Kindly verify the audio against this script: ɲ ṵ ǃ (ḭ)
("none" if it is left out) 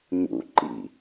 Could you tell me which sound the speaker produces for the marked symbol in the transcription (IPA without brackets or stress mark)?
ḭ